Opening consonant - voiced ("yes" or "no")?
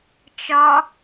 no